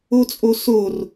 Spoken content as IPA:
o t͡sʼ o s o r

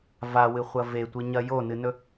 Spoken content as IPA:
v a w ɨ χʷ ɐ v e tʷ i ɲ ɐ j o n ɨ n ɵ

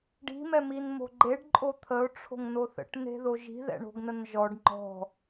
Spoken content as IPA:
ɖ i̤ m ɛ m i n m o̤ ɡ͡ǃ e ɖ ǃʼ o t̪ʰ ə ʊ̯ ʈ͡ʂʰ o̤ ŋ n o θ ə̰ ʈ n e̤ ð o ʒ i̤ ð ɛ̰ ɳ o̤ ɡ n ə n ʒ ɔ ɖ ŋ͡ǃ ɔ̤

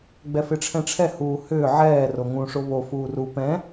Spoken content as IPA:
ɡ͡b ɛ f ɪ ʈ͡ʂʰ ɛ̃ ʈ͡ʂʰ ɛ h uː h ʏː ʕ ɛː r o ŋ ũ ʂ o β o f uː r u p ɛ̃

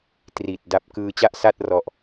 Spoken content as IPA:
t r i˨˩ t̚ d a˦˥ p̚ k ɯː˧ t͡ɕ a˥˩ ʔ s a˥˩ t̚ r ɔ˦˥ ʔ

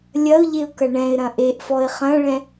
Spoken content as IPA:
lʲ ɐ ʊ̯ ʎ e ʊ̯ k ɐ ɳ ɛ̃ ɪ̯ ɾ ɐ̃ ʔ e ʔ f ɔ ɪ̯ χ ɐ̃ ɭ ɛ̃

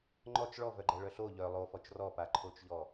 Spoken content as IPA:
ŋ͡ǃ ɔ t͡ʃ ɭ ɔ v œ ɡ͡ǃ ɛ ɭ œ ɬ o ʎ œ lˠ o f ɔ t͡ʃ r ɔ p a ǃʰ o t͡ʃ ʎ ɔ

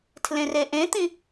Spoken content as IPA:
tʰ l ẽ r e ʔ ẽ t̪ ĩ

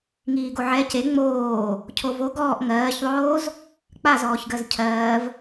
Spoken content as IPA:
ŋ iː ɡ o ʕ ɛ c e ŋ͡m oː | cʰ o v o ɡ ɔː ʔ ŋ ɜː ç ðˤ oː z | k͡p a z ɔː ç ɡ ɜ z cʰ ɜː v

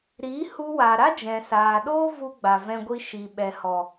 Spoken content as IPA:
ɾ i˨˦ h u˧ w a˨ ɾ a˦ d͡ʒ ɛ̃˨ s aː˨ ɗ oː˦ v u˧ ɡ͡b a˨ v ɛ̃˧ ɡʷ i˧ ʃ i˨ ɓ ɛ˨ h ɔ˨

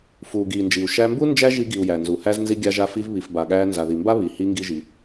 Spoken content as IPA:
f uː˨ ɡ iː˨ n d͡ʒ i˨ u̯ ʃ æ˧ m b u˦ n d͡ʒ æ˦ ʒ i˧ ɡ i˨ u̯ j æ˨ n z u˨ h æ˦ z n z i˦ ɡʲ a˧ ʒ a˧ f i˧ v β i˨ f b a˨ ɠ æː˧ n z a˨ ð i˨ m b a˦ β i˨ h i˧ ŋ ɡ i˦ ʒ i˧

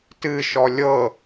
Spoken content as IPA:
t ɨ ʃ ɔ lʲ ɤ

